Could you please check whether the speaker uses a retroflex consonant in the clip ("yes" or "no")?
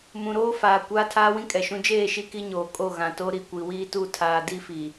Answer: no